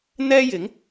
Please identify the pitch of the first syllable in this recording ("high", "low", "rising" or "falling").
high